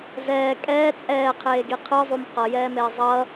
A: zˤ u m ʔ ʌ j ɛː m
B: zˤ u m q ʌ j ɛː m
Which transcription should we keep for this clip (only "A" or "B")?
B